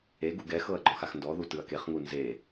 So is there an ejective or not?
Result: no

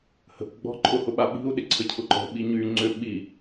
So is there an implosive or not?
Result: yes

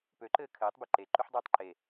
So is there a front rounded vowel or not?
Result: yes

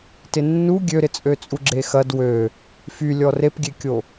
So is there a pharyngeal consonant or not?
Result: no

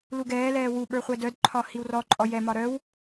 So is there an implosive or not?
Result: yes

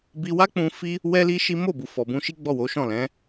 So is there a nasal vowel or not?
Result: yes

